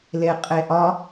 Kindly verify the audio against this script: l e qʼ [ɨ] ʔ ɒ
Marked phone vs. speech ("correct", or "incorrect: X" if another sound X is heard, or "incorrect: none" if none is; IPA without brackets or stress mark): incorrect: e